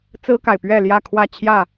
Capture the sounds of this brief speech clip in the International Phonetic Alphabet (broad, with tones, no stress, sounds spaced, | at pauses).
t͡s ɹ̩˦ k a˨ ɪ̯ p ɥ ɛ˥˨ l j ä˥˨ kʰ w ä˥˨ t͡ɕʰ j ä˥˨